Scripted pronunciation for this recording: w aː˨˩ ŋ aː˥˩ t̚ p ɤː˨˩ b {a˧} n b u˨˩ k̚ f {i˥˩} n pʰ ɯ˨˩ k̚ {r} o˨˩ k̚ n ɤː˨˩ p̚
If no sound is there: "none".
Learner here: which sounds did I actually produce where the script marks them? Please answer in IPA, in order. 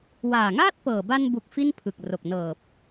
a˧, i˥˩, r

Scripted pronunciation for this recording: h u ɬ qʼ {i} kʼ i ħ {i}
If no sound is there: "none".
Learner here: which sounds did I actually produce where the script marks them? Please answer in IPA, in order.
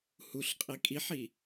i, i

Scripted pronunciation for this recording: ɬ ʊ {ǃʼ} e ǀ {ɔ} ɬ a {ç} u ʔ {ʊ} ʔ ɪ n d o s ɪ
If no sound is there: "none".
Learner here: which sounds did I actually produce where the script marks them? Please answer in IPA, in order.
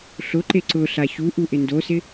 ǃ, ʊ, ç, u

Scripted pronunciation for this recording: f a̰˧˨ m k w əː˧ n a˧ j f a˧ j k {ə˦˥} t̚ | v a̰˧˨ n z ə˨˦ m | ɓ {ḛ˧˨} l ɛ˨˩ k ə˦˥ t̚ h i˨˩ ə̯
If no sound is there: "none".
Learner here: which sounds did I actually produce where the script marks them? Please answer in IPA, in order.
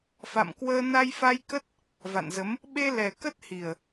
ə˦˥, e˧

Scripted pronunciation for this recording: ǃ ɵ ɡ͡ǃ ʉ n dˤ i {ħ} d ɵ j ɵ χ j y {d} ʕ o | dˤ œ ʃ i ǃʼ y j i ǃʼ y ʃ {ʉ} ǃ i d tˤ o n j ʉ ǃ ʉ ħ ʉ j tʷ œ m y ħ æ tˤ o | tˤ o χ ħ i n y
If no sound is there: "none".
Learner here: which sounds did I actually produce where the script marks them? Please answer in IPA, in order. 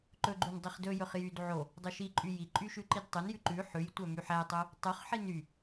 χ, d, ʉ

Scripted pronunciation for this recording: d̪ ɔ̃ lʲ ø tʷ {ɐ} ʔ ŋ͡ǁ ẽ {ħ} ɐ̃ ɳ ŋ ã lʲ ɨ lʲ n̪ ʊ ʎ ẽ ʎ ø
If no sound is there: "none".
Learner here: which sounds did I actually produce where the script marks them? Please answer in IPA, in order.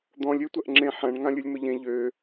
ɐ, ħ

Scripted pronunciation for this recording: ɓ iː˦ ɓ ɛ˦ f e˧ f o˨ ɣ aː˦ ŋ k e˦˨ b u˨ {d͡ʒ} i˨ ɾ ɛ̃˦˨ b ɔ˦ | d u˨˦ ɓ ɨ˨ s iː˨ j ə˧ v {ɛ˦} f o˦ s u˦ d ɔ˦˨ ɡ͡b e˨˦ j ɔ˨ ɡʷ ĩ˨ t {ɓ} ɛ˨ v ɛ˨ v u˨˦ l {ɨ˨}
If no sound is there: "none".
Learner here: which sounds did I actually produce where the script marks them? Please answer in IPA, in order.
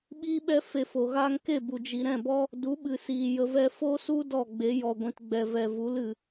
d͡ʒ, ɛ˦, ɡ͡b, ɨ˨

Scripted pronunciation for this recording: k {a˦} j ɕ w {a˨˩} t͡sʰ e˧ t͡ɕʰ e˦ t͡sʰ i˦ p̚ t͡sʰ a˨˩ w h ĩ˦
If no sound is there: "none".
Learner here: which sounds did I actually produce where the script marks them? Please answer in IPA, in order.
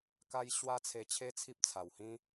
a˦, a˦

